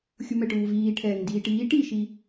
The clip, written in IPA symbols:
xʲ u m ɛ ʈ uː v iː ʈʰ ɛː ŋ n d iː ʈ iː ʈ i ʃ i

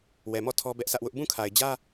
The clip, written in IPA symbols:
w ɛ˨ m ɔ˦˨ tʰ ɔ˦ b ɛ˦ ʔ s ä˦ ʔ w ʊ˦ ʔ b ũ˦˨ kʰ a˨ ɪ̯ d͡ʑ ä˦

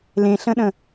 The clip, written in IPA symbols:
l ẽ ɬ ə̃ ɗ ə̃

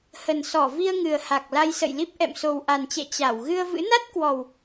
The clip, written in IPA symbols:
h ə˨˩ n s ɔ˧˩ v i˧ ə̯ ŋ ɨ˨˩ ə̯ h a˨˩ k̚ l a˧ j s ə̰˧˨ j l i˦˥ p̚ ʔ ɛ̰˧˨ m s o˨˩ w ʔ a˨˩ n t͡ɕ ɛ̰˧˨ t͡ɕ a˧˩ w ɣ ɨ˧ ə̯ v ɨ̰˧˥ n a˦˥ t̚ k w ɔ˨˩ w

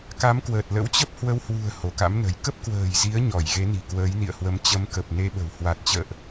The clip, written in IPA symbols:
k a˨˦ m k w əː˨˩ t̚ l ə̰˧˥ w t͡ɕ ə˦˥ p̚ h w ə˨˦ w h w ṳ˨˩ ə̯ h o˧˩ k a̰˧˥ m n ə̤˨˩ j k ə˦˥ p̚ k w ə̤ː˨˩ j z i˨˦ ə̯ ɲ ɔ˧˩ j ɣ e˨˦ n i̤˨˩ k w əː˨˦ j n ḭ˧˨ ə̯ h w ə˨˦ m t͡ɕ ə˨˦ m k ə˨˩ p̚ n e˧ ɓ ə̤˨˩ w h w a˨˩ t̚ t͡ɕ ə̰ː˧˨ ʔ

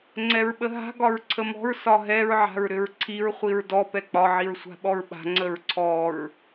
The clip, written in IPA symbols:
ŋ͡ǀ ɛ ɹ ɓ ə ɦ a̤ ɡ ɒ ɹ ǀʰ ə m ɔ̤ ɹ s ɒ ɦ ɛ ɹ ʕ a̤ ɹ ɾ ʏ ɹ ǀʰ i ɹ χʷ i ɹ d ɔ p ɛ k͡p ɒ ʕ i ɹ sʷ a̤ ɓ ɔ ɹ ɓ a̤ ŋ͡ǀ ə ɹ ǀʰ ɔ ɹ

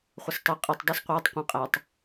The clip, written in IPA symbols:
χʷ ə s tˤ i qʼ i tˤ dˤ i s qʷ ɪː tˤ qʷ æ̃ qʼ æ tˤ

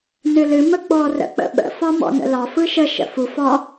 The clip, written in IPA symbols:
n ɨ l ɨ m ə ɡ͡b ɔ r ə̰ k͡p ə̰ ɓ ə̰ f ɒ m ɔ̰ n ə̰ l ɒ f ɯ ʃ ə ʃ ə̰ f u f ɒ

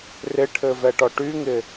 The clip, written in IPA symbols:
r ɪ ʈʰ ɘ v ɛ ʈ ɔ ʈ y ŋ ɪ

